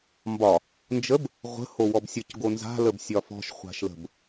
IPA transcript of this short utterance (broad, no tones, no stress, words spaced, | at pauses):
mbɒ | nd͡ʒəb | ʁʷə̤ howɔbsʲɤc ɡonza̤ ləbsʲɒfɔ̤ʃ χʷa̤ʃlə̤b